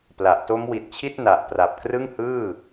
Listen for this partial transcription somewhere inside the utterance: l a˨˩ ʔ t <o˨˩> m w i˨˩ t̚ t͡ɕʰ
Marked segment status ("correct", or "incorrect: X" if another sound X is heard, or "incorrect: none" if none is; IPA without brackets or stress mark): incorrect: o˦˥